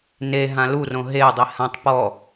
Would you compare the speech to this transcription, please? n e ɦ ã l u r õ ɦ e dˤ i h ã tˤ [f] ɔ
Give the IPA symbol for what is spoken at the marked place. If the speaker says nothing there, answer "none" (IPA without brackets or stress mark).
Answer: p